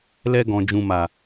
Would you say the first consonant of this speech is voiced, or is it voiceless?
voiced